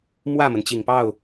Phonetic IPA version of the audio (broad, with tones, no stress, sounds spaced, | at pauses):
m w ä˥˩ m ə˩ n t͡ɕ i˨˩ ŋ p ɑ˥˩ ʊ̯